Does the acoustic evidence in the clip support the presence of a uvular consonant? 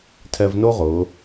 yes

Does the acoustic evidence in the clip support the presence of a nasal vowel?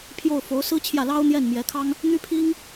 no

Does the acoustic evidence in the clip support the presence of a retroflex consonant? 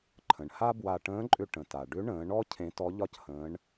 yes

